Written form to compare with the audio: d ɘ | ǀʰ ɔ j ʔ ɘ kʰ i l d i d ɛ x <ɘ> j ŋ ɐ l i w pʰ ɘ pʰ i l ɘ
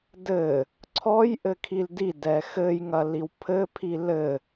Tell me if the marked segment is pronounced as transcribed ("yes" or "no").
yes